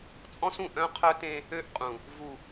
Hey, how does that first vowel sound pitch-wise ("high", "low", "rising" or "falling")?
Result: high